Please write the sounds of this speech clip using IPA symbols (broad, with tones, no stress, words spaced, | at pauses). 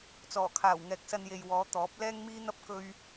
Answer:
t͡sɔː˨˩kʰaː˨˩w ŋɛː˨k̚sɐ˧nje˨j wɔː˨˧ t̪ɔː˨˥p̚lɛː˥ŋmiː˥n̪ɐ˥p̚ kɵ˥ɥ